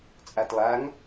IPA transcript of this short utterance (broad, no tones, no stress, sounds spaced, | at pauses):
t͡sʼ a t lˠ a ŋ